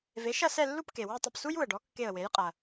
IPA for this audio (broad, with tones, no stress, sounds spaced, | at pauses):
v e˩˥ ʃ ɐ˥˨ s ɛ˥˨ lː u˥˨ p k e˩ w u˥˨ tˤ ə˧˩ p s u˥ j u˧˩ ə̯ ɖ ɔ˩˥ kː e˧˩ ə̯ w e˩˥ j qʼ ɐ˩